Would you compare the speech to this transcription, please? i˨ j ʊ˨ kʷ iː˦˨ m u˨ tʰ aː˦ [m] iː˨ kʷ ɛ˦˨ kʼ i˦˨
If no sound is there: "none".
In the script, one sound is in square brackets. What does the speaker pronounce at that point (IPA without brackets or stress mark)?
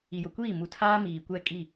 m